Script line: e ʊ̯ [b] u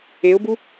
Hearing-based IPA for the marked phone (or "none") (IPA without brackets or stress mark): b